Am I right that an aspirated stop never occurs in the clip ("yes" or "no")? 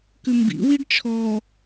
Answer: no